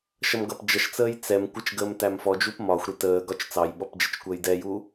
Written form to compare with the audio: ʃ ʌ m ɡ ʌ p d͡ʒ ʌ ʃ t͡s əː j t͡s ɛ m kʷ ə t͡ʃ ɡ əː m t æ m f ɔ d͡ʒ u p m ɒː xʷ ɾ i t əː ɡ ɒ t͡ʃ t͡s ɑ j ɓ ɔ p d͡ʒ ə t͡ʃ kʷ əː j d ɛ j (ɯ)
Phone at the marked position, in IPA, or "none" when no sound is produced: u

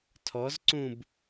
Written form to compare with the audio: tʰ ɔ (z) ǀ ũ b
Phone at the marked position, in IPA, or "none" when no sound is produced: z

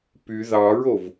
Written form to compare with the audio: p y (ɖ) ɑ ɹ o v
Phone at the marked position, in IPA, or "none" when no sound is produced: ð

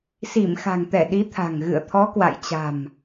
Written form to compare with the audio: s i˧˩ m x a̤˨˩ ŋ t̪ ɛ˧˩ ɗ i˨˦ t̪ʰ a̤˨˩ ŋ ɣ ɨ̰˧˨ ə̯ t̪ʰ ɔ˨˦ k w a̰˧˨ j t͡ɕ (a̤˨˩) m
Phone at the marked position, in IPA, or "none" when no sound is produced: a̤˨˩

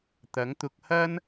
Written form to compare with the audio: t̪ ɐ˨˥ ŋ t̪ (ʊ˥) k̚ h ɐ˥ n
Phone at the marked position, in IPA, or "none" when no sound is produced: ʊ˧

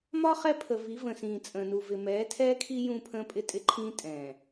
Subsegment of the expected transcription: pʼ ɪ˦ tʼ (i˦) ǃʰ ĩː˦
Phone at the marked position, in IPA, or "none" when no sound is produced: ɪ˦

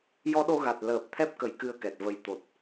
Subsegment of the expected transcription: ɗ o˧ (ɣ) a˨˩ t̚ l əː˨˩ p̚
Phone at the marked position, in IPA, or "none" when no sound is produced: ɣ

